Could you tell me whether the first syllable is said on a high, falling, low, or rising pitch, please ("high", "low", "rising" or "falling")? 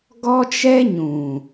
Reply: high